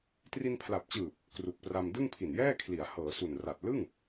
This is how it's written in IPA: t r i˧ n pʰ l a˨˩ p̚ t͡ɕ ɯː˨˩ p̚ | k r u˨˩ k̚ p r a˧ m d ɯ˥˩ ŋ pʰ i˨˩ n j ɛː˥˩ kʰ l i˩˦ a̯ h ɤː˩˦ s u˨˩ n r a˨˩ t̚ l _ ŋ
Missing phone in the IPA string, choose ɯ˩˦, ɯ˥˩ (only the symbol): ɯ˥˩